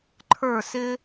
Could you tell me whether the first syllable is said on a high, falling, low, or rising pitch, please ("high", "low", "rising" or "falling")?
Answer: falling